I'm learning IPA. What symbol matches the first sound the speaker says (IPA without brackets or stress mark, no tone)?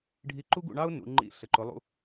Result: ɖʱ